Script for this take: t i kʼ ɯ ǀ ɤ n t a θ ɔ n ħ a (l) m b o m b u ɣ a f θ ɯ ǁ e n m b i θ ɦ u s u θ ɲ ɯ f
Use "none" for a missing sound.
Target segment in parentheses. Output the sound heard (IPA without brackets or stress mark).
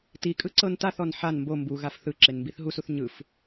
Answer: n